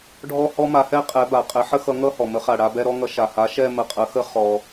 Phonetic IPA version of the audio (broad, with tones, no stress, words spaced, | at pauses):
ɖʱɔ˥˧hɔ˥ma˨˥hɛ˥˧ qʼɛ˨˥ba˩ qʼɛ˨˥ ħə˥xʌ˨˥ŋʌ˥˧ hɔ˩mə˨˥χa˩ ɽa˥˧bɛ˥˧ɾɔ˥ŋʌ˨˥ ʃa˩ha˨˥ʃɛ˥˧ mə˧˩qʼə˨˥xə˥˧ χɔ˩